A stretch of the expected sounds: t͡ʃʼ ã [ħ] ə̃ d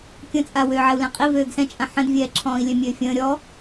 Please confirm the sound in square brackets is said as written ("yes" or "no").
yes